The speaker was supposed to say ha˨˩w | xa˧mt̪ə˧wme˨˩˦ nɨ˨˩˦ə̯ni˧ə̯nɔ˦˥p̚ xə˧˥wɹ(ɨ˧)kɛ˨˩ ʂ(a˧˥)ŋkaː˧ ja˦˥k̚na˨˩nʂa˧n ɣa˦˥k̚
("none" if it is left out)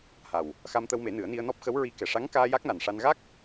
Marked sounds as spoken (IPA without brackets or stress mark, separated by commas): i˧, a˧˥